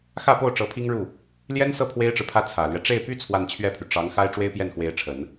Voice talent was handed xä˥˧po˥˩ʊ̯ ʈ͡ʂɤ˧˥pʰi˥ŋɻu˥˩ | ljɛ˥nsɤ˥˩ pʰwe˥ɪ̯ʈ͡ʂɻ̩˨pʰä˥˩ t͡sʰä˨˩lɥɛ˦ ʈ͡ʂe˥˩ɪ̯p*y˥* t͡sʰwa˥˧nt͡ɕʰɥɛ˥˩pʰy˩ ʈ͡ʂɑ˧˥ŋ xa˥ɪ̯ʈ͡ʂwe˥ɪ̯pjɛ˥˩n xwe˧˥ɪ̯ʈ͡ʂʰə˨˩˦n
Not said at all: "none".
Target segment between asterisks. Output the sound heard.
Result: y˥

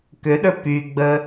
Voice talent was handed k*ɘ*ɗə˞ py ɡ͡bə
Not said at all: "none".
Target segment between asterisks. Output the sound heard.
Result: ø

